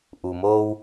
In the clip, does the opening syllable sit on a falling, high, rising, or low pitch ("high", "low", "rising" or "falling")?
low